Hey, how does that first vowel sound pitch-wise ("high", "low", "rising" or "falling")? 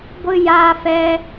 high